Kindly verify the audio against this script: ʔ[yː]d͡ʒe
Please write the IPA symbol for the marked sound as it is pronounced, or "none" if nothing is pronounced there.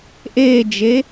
eː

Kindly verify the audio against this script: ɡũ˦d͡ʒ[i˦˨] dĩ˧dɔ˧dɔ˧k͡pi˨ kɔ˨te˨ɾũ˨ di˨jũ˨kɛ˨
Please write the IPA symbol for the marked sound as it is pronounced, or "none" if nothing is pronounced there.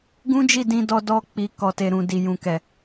i˦˨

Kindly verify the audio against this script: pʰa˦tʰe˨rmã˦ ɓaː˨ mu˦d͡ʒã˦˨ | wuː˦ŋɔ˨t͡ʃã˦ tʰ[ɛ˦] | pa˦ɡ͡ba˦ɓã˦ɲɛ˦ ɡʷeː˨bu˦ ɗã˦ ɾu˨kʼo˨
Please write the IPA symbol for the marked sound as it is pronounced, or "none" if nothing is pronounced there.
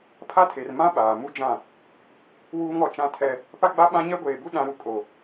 ɛ˦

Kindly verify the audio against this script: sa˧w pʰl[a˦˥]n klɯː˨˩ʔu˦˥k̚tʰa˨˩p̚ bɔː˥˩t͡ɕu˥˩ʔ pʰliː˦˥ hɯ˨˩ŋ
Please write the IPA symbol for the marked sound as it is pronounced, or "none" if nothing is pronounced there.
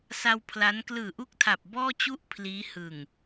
a˦˥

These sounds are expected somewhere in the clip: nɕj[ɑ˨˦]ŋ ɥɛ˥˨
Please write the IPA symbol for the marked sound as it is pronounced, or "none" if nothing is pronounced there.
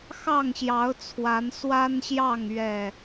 ɑ˥˨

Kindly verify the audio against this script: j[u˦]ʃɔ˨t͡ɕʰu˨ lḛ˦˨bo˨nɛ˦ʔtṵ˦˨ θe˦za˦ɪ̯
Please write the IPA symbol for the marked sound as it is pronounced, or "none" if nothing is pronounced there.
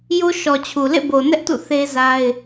o˦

